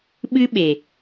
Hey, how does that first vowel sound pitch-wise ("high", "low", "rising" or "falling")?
high